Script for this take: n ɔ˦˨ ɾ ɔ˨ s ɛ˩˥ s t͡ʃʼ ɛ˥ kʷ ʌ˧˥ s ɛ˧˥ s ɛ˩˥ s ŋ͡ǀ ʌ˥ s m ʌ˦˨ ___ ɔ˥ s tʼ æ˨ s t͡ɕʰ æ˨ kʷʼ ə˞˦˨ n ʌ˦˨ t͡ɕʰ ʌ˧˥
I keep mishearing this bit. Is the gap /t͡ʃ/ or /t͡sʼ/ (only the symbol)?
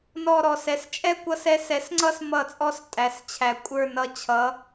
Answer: t͡sʼ